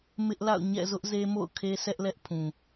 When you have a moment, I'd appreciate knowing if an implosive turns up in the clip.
no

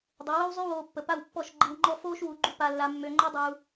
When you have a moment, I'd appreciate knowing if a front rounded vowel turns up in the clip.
yes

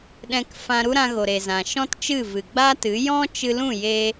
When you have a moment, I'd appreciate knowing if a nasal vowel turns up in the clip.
yes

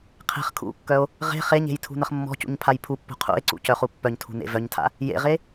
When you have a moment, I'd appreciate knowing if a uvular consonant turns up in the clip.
yes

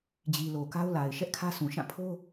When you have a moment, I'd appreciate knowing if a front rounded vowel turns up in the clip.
no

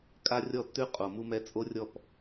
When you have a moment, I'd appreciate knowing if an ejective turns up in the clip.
yes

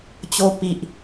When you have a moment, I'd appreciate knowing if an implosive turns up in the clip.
no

